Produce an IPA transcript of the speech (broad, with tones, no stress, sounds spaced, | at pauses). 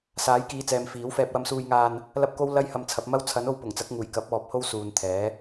s aː˨˥ j k iː˨˧ t͡s ɛː˨ m f iː˨˥ w f ɛː˧ p̚ w ɐ˧ m s uː˧ j ŋ aː˧ n | l ɐ˥ p̚ k o˥ w l ɐ˥ j h ɐ˧ m t͡sʰ ɐ˨˥ p̚ m ɐ˥ w t͡sʰ ɐ˨˥ n o˧ w p ʊ˨˩ ŋ t͡s ɐ˨˥ k̚ ŋ uː˨˩ j k ɐ˨˥ p̚ ɔː˨ p̚ h o˥ w s uː˨ n t̪ʰ ɛː˨˥